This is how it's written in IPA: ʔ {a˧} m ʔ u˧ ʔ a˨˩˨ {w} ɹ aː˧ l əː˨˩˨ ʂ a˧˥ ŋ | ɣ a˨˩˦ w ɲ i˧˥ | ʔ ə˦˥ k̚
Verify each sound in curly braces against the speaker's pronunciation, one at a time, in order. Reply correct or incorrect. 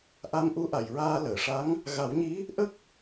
correct, incorrect

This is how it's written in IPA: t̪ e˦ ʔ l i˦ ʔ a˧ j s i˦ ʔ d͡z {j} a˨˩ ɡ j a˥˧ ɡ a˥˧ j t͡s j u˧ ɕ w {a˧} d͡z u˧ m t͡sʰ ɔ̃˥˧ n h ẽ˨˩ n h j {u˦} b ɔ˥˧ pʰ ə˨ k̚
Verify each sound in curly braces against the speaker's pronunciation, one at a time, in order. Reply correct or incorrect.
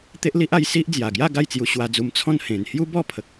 correct, correct, correct

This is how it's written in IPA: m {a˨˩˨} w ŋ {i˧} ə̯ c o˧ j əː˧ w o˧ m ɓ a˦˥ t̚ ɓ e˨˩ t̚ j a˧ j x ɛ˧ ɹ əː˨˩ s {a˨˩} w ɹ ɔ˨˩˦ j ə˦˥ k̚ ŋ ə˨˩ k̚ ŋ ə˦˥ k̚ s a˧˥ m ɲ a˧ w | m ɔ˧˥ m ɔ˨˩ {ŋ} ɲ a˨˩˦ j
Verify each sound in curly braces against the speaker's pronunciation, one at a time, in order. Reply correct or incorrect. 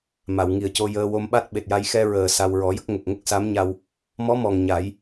correct, incorrect, incorrect, correct

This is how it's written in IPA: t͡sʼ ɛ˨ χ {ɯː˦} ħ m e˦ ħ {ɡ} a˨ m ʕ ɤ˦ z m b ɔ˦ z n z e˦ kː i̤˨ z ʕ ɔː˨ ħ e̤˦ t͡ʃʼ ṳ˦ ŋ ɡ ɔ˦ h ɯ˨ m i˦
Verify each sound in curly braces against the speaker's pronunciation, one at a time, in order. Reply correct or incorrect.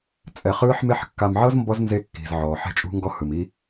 correct, incorrect

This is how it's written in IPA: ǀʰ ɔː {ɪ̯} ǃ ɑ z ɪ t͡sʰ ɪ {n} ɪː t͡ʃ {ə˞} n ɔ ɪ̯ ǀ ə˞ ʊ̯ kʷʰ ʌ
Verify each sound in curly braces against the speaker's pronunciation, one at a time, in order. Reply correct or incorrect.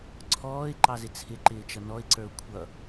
correct, incorrect, incorrect

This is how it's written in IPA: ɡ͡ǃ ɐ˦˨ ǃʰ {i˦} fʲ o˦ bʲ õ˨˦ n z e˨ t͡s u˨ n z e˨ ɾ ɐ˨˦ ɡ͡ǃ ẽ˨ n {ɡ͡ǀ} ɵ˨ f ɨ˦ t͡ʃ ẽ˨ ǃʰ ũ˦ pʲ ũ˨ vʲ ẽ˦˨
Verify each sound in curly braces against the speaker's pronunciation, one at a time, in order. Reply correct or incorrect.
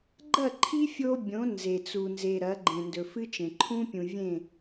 correct, incorrect

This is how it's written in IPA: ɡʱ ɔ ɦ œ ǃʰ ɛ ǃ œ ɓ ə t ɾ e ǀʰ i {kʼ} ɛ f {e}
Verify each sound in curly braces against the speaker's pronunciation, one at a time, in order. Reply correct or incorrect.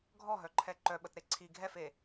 incorrect, correct

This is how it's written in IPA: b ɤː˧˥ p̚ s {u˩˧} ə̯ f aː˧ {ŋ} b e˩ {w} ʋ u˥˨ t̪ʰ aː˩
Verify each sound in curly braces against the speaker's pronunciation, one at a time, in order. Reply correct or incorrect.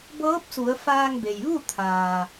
correct, correct, incorrect

